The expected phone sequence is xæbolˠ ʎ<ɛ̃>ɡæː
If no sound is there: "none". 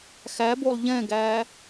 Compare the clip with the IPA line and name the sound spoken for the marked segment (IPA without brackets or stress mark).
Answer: ɛ̃